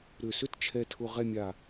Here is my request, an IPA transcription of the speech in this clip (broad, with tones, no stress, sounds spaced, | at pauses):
ɾ ʏ˧˩ s ʏ˥ t t͡ʃʰ ɛ˧ tʰ ʊ˧ ʁ ɛ˥˧ mʲ a˧˩